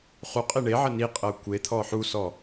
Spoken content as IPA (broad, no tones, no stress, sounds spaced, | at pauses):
χ u qʼ e ɳ e ʕ ə n i qʼ ɤ kʷ e t̪ʰ ɔ ħ u s ɔ